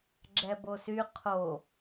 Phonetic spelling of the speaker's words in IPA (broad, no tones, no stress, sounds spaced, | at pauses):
ɡ͡ǁ ɛ b o s y qʰ o